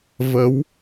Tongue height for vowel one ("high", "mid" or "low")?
mid